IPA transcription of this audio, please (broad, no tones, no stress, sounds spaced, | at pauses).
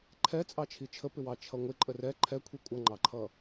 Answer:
ǃʰ ɛ t͡sʼ ɑ t͡ʃʰ i t͡ʃʰ ə p ɪ w ɑ t͡ʃʰ ʌ ŋʷ ɪ ǃʼ ə r ɛ ǃʰ ɛ kʷʰ i kʷʼ ʌ ŋ͡ǃ ɑ ǃʰ ʌ